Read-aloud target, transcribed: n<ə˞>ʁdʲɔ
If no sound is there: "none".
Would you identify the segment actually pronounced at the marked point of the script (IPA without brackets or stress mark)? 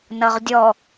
ʌ